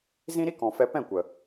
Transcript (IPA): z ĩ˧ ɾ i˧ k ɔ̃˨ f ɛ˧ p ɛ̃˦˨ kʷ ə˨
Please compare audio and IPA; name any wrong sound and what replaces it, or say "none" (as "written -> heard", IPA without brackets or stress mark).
none